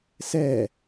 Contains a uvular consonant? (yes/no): no